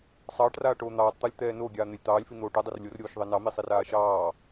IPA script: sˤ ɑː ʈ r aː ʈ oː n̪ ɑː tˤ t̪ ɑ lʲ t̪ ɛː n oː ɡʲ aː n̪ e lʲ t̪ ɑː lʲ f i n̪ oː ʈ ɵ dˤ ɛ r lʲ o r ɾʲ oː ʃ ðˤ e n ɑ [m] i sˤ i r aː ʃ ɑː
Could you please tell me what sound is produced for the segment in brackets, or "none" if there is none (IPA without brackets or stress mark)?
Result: m